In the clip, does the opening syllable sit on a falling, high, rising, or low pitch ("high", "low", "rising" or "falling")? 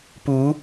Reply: rising